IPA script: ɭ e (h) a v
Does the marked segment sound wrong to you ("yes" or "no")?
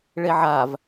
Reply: yes